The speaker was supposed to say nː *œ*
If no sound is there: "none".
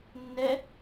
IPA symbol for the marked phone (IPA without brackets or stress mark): ɛ